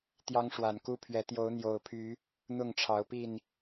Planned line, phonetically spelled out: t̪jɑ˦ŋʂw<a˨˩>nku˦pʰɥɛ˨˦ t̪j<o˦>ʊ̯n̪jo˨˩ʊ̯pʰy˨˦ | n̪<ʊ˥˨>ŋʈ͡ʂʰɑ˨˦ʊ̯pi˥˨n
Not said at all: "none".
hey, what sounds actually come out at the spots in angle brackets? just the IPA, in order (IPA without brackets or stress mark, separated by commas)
a˨˩, o˨˦, ʊ˥˨